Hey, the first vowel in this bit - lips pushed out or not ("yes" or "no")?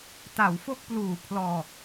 no